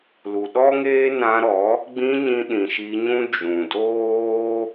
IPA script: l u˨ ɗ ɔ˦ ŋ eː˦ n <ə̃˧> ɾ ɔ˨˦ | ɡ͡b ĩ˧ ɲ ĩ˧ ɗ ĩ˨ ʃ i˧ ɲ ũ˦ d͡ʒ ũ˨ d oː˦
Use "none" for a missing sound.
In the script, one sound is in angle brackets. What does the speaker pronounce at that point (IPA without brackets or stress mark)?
ã˧